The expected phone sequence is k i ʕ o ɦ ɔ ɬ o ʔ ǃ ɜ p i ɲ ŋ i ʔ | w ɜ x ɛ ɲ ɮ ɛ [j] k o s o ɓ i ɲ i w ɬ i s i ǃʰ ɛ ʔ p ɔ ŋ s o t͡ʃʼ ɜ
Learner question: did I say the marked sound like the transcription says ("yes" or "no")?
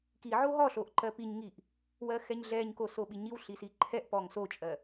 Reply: no